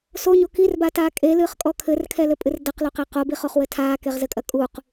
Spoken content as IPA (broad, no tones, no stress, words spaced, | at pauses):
soɲo kirbataː kʼelɨːχkʼɔ kʰɘrkʰɛlɘpʼɨr dɐqloqe qobiχoχwɘ tʰaːkeʁzɘkʼɐ kʼuq